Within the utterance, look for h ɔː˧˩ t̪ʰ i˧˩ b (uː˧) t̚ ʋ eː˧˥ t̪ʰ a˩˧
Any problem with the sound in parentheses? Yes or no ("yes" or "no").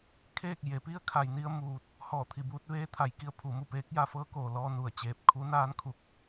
no